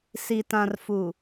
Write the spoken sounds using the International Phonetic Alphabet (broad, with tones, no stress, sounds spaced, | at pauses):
s i˨ t ã˨ r f u˨